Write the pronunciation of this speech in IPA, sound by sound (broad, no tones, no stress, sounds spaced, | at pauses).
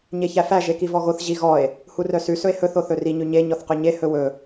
ɲ e ç æ f æ ʒ e k i v ɔ ɣ o θ ʑ i ɣ ɔ e̯ | h u r œ s ʉ s ɵ e̯ h ɵ θ o θ ɵ r i ɲ ʉ ɲ e ɲ ɔ θ q ø ɲ e h ɵ w ɵ